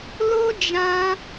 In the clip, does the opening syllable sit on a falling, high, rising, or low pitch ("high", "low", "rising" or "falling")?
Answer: high